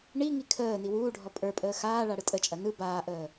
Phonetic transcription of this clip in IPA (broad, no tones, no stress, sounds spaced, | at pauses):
ɳ i ŋ i kʰ əː n i w uː ɖʱ ɔ pʼ ə˞ pʼ əː x aː ɭ a ɽ ɯ tʼ ə t͡ʃʼ ɐ n ɯ b aː ʔ əː